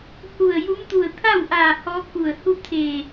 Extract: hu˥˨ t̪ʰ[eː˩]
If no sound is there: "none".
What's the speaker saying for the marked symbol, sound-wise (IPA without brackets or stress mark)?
eː˧˩